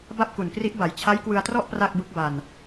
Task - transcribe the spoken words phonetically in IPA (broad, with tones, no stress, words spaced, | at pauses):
ba˥˩p̚ku˨˩nkri˦˥ʔba˩˦j t͡ɕʰa˦˥jkwɯ˧a̯trɔ˥˩ʔ pra˥˩k̚bɯ˦˥k̚ba˧n